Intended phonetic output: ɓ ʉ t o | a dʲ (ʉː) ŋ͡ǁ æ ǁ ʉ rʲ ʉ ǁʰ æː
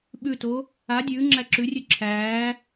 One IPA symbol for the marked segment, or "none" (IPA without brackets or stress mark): ʉː